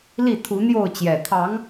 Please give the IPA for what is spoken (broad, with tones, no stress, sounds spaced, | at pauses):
l i˥˨ t̪ʰ u˨˦ n̪ j o˥˨ ʊ̯ t͡ɕ j ɛ˨˩ t̪ʰ ɑ˨˦ ŋ